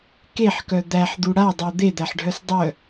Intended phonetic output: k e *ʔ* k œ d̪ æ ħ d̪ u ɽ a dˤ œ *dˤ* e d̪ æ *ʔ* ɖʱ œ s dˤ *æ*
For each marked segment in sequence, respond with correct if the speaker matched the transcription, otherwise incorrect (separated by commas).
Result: incorrect, incorrect, incorrect, incorrect